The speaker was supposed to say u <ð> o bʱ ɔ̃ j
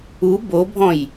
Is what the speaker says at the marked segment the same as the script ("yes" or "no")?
no